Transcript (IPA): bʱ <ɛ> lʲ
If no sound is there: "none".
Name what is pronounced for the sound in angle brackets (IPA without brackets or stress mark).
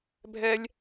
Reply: ɛ